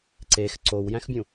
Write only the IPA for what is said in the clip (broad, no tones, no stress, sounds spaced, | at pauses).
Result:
ǀ e x ǀ o w j æ̃ x bʲ ũ